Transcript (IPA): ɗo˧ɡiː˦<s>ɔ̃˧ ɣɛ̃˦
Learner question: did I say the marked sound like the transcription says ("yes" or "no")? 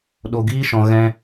no